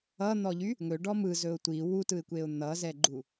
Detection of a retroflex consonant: present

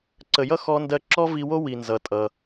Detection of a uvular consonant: absent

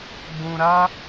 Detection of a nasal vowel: present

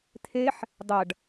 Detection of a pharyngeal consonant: present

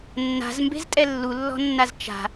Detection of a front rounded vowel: absent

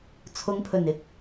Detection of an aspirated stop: present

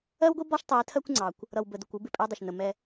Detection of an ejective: present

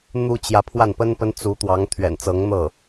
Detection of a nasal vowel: absent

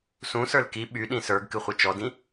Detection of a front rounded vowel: present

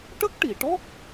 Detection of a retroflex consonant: present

